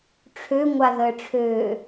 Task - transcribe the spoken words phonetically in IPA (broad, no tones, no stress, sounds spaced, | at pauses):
ʈ͡ʂʰ ø ŋʷ a ð əː ʈ͡ʂʰ øː